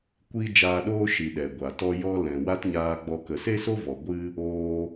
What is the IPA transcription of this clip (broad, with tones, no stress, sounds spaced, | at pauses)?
kʷ iː˦ d͡ʒ aː˧ ɗ oː˦ ʃ i˨ ɗ ɛ˨ ɡʷ a˨ t ɔ˦ j ɔ˦ l ɛ̃˨ w a˦ t ɲ aː˧ ɡ͡b ɔ˧ k ə˨ s e˦ s o˦ v ɔ˨ ɡʷ ɨ˦ | oː˦